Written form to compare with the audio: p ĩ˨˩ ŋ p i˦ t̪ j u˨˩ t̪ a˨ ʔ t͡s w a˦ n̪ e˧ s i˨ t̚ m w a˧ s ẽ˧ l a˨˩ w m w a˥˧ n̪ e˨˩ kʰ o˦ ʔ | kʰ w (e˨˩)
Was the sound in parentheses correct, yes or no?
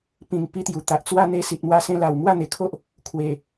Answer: yes